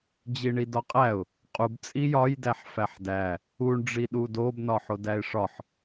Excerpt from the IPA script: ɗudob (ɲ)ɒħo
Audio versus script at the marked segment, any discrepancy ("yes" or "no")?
yes